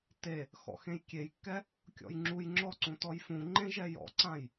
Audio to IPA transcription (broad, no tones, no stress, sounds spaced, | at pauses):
t e | x ɔ̰ x ẽ j kʲ e j kː ɛ | kʲ ɔ̰ j ŋ͡ǁ u j ŋ͡ǁ ɔ ǀ ũ t ɔ j f ũ ŋ͡ǃ ẽ ʒ ɛ j ɔ̰ ǀ ã j